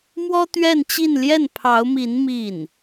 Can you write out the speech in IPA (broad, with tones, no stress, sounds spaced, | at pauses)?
m w ɔ˥ t̪ ɥ ɛ˥˧ n t͡ɕ i˥˧ n l j ɛ˥˩ n pʰ ɑ˧˥ ʊ̯ m i˧˥ n m i˥˩ n